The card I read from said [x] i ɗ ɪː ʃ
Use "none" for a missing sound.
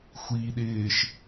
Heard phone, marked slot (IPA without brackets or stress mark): xʷ